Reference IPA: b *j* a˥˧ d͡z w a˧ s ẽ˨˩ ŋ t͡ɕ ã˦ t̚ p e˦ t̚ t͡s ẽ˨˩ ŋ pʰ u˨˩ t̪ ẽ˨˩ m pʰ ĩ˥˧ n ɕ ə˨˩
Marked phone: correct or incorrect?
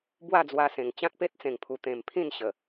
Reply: incorrect